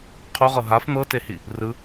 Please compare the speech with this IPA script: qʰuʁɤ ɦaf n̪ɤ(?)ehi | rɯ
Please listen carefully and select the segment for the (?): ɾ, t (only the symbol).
t